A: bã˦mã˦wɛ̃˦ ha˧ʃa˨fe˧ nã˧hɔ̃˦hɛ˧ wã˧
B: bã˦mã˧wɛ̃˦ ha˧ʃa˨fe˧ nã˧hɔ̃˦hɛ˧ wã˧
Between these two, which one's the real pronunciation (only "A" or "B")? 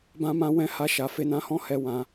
A